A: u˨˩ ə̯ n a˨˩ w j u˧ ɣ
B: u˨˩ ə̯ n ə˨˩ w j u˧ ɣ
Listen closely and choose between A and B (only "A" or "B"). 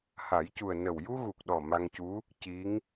B